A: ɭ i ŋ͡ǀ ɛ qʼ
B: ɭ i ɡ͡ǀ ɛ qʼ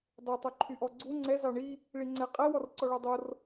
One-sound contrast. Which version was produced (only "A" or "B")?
A